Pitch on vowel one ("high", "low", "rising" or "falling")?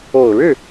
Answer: low